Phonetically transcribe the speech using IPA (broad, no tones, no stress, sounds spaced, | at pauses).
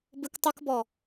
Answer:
b ɨ k tˤ ɨ k b ɔ